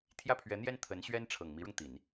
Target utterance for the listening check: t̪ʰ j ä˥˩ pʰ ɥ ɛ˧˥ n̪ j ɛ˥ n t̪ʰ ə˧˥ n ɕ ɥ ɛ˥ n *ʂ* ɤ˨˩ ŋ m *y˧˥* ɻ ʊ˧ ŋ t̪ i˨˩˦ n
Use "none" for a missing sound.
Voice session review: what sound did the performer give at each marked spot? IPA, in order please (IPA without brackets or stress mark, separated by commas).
ʈ͡ʂʰ, i˧˥